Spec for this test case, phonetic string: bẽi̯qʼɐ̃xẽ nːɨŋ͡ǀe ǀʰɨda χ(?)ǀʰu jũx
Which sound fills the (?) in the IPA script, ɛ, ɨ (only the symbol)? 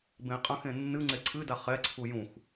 ɛ